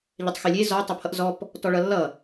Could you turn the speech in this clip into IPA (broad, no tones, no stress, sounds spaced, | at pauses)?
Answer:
ʎ ɛ tˤ x e lʲ e z ɔ tˤ ʌ pʰ ʌ ʔ z ɔ p | t ɔ ɭ ʌ lː ʌ